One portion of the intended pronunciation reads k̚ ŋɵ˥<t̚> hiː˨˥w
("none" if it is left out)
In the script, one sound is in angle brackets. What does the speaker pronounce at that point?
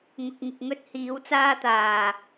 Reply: t̚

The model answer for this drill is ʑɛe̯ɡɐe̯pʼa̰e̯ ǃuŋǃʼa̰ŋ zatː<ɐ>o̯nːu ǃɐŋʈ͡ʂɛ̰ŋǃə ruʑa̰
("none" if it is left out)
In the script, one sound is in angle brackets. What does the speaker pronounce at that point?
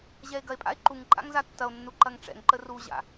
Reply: ɐ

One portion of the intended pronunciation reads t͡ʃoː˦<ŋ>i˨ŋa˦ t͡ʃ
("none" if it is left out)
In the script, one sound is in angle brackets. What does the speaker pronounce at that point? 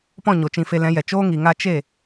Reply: ŋ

